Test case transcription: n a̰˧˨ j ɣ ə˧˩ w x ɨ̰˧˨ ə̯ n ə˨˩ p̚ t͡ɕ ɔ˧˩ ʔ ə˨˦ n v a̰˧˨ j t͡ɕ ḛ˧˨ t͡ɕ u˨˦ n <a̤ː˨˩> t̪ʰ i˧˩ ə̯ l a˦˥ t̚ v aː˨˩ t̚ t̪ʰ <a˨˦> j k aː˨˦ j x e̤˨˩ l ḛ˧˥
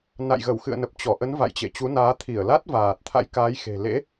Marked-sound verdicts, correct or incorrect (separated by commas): incorrect, incorrect